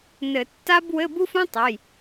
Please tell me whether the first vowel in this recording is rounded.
no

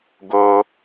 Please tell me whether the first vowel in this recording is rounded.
yes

